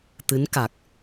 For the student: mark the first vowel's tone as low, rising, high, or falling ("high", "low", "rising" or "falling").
rising